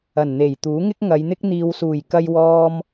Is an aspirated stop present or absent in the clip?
absent